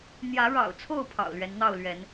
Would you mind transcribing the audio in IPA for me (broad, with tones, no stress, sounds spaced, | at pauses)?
n̪ j ä˨˦ ɻ ɑ̰˨˩ ʊ̯ t͡sʰ o˥˨ ʊ̯ pʰ ɑ̰˨˩ ʊ̯ l ɥ ɛ˨˦ n n̪ ɑ˥˨ ʊ̯ l ɥ ɛ˨˦ n